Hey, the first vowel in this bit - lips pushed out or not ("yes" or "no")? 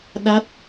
no